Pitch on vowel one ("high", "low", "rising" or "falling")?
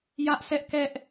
high